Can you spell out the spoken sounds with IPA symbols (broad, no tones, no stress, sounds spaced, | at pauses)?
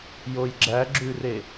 j o j ɡ͡ǁ æ ɡ͡ǁ ʉ r e